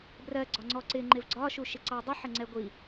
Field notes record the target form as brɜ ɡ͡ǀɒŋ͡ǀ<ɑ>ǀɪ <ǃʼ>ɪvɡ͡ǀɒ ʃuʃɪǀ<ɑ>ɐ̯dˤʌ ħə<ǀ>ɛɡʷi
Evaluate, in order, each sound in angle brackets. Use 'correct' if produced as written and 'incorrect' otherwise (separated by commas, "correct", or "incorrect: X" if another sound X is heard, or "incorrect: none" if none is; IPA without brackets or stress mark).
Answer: incorrect: ɔ, incorrect: ŋ͡ǃ, correct, incorrect: ŋ͡ǀ